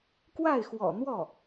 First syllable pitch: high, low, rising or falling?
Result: falling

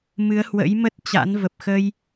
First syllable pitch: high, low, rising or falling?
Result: rising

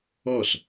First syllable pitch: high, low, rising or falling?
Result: falling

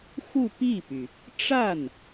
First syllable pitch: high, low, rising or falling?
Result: falling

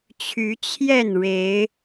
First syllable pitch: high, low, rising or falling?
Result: rising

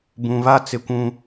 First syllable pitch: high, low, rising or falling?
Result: low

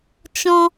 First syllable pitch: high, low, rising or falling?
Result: high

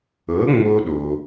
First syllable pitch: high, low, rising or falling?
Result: rising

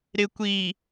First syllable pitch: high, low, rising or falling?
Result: low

